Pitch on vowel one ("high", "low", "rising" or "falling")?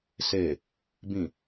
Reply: low